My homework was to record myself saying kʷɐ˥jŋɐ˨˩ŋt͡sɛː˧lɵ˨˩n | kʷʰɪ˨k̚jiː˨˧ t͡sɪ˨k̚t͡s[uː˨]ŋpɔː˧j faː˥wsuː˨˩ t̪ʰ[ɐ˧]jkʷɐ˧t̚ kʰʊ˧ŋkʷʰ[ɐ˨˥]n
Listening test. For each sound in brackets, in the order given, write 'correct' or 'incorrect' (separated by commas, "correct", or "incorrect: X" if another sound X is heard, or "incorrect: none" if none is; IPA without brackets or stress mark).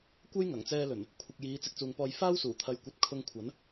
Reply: correct, correct, correct